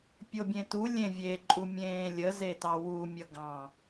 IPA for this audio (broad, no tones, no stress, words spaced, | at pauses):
pʲobʲẽtu lʲẽvʲe ǃʼumʲẽːlʲə zetɑwu mʲʌɡɑ̃